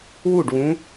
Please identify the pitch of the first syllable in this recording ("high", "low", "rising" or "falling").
falling